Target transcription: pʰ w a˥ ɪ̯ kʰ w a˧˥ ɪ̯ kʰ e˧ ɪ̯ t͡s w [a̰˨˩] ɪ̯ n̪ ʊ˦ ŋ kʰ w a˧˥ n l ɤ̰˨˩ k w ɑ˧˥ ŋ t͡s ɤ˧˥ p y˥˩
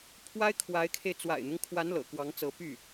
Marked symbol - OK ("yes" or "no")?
yes